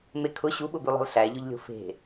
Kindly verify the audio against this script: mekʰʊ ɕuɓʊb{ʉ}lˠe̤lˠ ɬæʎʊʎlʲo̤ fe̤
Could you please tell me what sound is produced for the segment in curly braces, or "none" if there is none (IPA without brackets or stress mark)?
ʉ